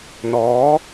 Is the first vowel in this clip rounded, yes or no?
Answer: yes